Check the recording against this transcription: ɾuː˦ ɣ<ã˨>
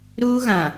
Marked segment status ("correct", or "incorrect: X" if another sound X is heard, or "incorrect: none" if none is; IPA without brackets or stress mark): correct